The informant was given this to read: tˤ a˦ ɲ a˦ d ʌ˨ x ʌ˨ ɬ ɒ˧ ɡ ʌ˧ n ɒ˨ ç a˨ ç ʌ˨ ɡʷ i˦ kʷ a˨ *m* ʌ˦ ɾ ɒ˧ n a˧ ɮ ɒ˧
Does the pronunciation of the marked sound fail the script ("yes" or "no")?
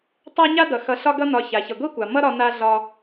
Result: no